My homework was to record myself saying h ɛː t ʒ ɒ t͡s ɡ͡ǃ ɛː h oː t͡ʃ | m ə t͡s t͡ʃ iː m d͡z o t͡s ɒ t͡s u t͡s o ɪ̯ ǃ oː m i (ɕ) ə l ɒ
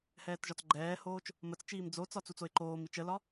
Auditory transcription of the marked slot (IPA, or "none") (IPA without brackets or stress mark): t͡ʃ